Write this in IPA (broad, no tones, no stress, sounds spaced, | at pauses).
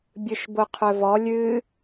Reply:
bʲ ɨ ʃ b o qʰ œ v ɔ lʲ ɨ